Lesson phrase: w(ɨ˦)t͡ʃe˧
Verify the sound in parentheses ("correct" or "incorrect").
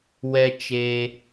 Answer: incorrect